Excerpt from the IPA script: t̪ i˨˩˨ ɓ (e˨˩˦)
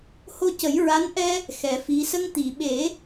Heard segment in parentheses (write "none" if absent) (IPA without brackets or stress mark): e˨˩˦